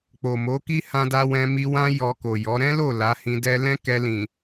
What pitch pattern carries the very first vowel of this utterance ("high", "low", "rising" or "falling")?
low